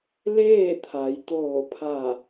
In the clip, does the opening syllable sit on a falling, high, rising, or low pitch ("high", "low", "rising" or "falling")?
falling